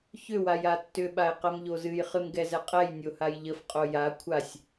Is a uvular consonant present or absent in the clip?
present